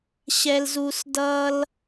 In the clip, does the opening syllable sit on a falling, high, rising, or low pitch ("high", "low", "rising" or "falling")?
high